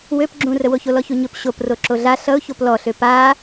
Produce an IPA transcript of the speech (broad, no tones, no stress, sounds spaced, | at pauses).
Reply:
w ø p ɡ͡ǁ ũ r ə w o ç o l ɔ ç u ɲ ɵ p ɕ o p r o ǁ o ɮ a ɬ ʌ ʊ̯ ç o p l ɔ ɬ ø p a